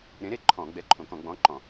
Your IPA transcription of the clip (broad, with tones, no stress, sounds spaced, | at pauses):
ɾ ẽ˨˥ ɾ e˥˨ ǃʰ ɔ̃ː˧˩˧ ɡ͡b ɛ˨˥ ǃʰ õ˧˩˧ k ɔ̃˧˩˧ ɡ͡b ɔ̃ː˨˥ ǃ ɔ̃˧˩˧